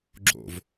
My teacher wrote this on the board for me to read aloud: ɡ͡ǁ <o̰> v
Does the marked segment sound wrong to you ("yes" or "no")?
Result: no